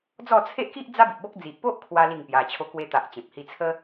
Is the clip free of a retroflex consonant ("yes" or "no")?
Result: yes